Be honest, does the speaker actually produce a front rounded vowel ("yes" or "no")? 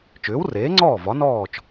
yes